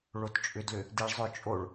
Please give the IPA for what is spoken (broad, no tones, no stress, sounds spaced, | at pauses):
ɭ o t t͡ʃʼ ʏ d l ʏ | d i ɭ zˤ ʏ t͡ʃʼ o ɭ